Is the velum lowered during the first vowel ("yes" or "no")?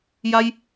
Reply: no